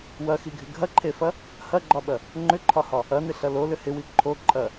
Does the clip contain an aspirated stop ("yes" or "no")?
yes